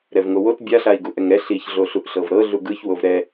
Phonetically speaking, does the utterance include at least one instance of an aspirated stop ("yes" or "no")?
no